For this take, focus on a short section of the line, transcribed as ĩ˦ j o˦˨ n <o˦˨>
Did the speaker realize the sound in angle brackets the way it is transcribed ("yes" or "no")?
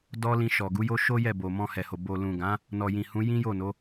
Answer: no